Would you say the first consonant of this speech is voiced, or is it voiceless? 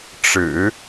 voiceless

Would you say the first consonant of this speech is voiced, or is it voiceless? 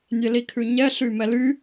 voiced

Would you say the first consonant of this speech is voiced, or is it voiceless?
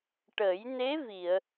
voiceless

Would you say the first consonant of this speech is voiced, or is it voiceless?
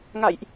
voiced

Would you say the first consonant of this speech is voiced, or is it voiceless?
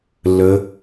voiced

